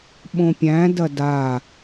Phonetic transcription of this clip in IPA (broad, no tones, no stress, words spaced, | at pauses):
ɓõpʲæ̃ dɐda